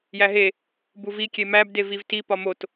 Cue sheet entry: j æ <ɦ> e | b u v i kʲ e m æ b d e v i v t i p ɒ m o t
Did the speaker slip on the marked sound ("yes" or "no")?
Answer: no